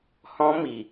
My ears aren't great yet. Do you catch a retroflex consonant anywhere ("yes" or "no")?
no